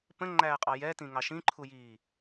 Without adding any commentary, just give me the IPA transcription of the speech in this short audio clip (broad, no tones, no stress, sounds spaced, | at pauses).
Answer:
p ə̃ ŋ͡ǃ æː qʼ ɑ j ɛ t ĩ ŋ ɑ ʃ ĩ ǃʰ u j iː